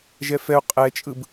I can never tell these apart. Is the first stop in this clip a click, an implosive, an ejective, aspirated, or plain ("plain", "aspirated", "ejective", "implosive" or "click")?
ejective